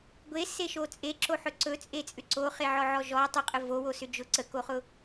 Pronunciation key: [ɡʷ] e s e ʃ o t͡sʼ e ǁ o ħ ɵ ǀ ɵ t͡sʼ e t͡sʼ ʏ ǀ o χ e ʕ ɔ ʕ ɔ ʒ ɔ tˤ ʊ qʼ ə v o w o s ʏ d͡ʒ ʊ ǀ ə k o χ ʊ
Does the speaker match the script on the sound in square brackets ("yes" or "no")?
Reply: yes